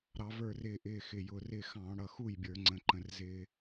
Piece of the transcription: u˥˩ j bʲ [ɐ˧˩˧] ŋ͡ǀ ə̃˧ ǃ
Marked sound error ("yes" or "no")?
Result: yes